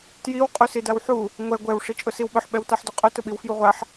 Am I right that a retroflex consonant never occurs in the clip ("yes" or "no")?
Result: no